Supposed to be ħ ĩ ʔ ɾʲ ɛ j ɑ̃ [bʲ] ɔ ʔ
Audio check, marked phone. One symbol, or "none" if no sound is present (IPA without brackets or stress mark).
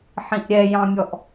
mʲ